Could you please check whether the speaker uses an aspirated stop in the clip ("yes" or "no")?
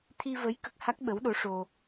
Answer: yes